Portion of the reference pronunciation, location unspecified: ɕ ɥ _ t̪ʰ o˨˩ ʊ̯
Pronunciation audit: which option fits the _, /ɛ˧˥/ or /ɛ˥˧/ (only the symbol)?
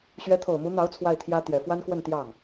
ɛ˧˥